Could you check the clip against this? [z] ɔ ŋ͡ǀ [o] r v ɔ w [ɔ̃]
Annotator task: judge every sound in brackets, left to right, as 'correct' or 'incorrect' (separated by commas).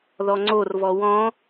incorrect, correct, correct